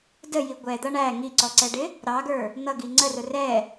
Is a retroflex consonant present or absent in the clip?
present